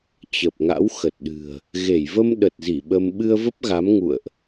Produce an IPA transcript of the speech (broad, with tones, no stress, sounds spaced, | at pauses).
t͡ɕ ə˨˩ p̚ ŋ a̰˧˥ w x ə˨˩ t̚ ɗ ɨ̤˨˩ ə̯ | ɣ e˧˩ j v ə˧ m ɗ ə˨˩ t̚ z i˧˩ ɓ ə˧ m ɓ ɨ˧ ə̯ v ə˦˥ p̚ ɣ a˨˦ m ŋ ṵ˧˨ ə̯ ʔ